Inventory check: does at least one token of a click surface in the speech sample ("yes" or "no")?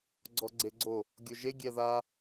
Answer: yes